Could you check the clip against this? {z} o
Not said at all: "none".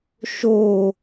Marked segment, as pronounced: ʃ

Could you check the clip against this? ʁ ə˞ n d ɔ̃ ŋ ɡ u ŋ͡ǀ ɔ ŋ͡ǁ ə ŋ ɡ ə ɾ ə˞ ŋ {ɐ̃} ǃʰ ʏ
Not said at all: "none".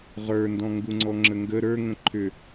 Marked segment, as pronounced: ə̃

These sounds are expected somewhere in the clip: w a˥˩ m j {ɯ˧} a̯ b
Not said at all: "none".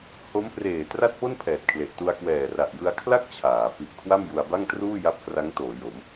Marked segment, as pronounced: u˧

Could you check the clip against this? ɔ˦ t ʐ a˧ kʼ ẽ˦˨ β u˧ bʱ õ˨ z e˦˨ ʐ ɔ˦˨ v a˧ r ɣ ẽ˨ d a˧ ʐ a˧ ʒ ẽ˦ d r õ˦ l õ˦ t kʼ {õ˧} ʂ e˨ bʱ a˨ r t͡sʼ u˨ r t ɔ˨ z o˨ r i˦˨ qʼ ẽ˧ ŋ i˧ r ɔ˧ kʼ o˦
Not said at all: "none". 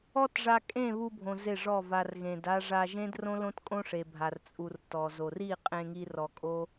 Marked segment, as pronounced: õ˦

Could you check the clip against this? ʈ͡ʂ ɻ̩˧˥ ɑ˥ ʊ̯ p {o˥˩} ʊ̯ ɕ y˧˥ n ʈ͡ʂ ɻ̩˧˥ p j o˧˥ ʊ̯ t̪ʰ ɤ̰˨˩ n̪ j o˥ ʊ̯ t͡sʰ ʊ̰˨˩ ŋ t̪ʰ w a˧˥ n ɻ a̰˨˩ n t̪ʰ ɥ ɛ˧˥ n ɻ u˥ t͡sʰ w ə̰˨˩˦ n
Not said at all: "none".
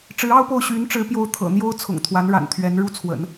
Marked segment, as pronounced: o˥˩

